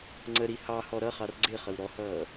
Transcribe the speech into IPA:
ŋ͡ǀəɾi hɑhɔ ɾʌχɑr ɡ͡ǀɪχəw ɾɔhʌː

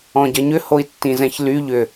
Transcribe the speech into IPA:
ɔ̃ɟɐɲʏ hoi̯tːĩzɛ̃çly ʎʏ

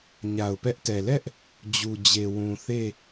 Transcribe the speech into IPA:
ɲa˨ʊ̯pɛ˦ʔtɛ˨ lɛ˦ʔ | d͡ʑu˨d͡ʑe˨wũ˨ θe˦˨

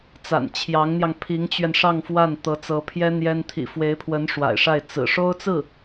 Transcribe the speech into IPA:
t͡sa̰˨˩nt͡ɕʰjɑ˧˥ŋn̪jɑ˧ŋ pʰi˧˥ŋt͡ɕɥɛ˧nʂɑ˥˧ŋ fwa˥˩n t̪ɤ˧˥t͡sɤ˧˥pʰjɛ˥ n̪jɛ˥n t̪ʰḭ˨˩fwe˧˥ɪ̯pʰwə˧˥n ʂwa̰˨˩ɪ̯ʂa˥˩ɪ̯ t͡sɹ̩˨˩ ʂo˥ʊ̯t͡sɹ̩˥˩

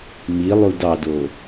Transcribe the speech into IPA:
milˠud ɑdo

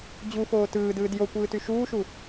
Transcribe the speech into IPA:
d͡ʑufoː tɯːdɯːd jokʷɯːty ʃuːʃu

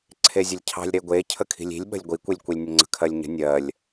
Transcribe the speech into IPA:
ǀʰezʲəlʲcʰɑ̤lʲ ɾeɡʷe cʰəkʰi̤lʲi̤lʲɓə̤lʲ ɡʷikʷilʲkʷilʲ nʲəŋ͡ǀə̤kʰɜlʲɲə̤ nʲɜlʲ

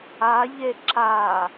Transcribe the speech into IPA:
aʎe ǁa

